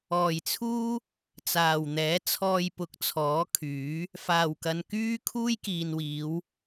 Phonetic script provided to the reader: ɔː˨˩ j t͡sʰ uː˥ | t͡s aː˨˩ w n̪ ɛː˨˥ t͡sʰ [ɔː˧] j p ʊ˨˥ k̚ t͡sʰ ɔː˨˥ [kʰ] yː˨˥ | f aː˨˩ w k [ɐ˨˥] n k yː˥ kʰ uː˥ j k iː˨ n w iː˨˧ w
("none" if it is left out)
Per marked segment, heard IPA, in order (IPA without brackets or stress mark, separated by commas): ɔː˧, kʰ, ɐ˨